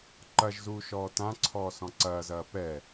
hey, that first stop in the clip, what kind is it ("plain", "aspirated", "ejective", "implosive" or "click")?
click